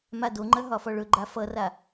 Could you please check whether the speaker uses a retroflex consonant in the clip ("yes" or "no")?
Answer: yes